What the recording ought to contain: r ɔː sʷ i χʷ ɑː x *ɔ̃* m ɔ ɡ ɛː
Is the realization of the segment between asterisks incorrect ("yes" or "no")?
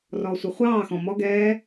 no